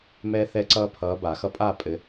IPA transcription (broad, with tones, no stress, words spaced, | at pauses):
mɛ˦θɛ˦ǀʌː˦pʰʌː˨˦ ba˨˩˦xʌ˥˨ pʼaː˥˨pʼɘ˨˦